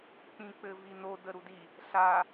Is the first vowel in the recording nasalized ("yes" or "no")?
yes